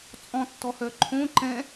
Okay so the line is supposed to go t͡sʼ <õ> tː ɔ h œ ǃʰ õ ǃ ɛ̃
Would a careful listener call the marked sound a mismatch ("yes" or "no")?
yes